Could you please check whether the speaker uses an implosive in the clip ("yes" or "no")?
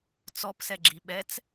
yes